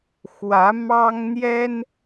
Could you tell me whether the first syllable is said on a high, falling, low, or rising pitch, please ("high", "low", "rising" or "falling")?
rising